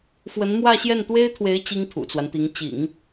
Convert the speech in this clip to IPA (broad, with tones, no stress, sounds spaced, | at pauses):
f w ə˧˥ n m w ä˥˧ ɕ j ɛ˥˩ n t̪ w e˥ ɪ̯ t̪ʰ w e˧˥ ɪ̯ t͡ɕ i˥ ŋ t̪ʰ ṵ˨˩ t͡s w a˦ n t̪ i˧˥ ŋ t͡ɕ ḭ˨˩˦ ŋ